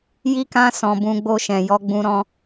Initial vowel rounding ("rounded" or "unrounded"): unrounded